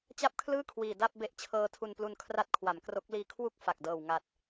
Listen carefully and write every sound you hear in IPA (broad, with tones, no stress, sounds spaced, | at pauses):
t͡ɕ a˥˩ p̚ kʰ l ɯː˥˩ kʰ w iː˨˩ d a˥˩ p̚ b e˦˥ ʔ t͡ɕʰ ɤː˧ tʰ u˧ n p l u˧ n kʰ r a˦˥ t̚ kʰ w a˩˦ m k r o˦˥ k̚ l iː˧ kʰ w u˥˩ k̚ f a˨˩ k̚ d ɤː˨˩ w ŋ a˨˩ t̚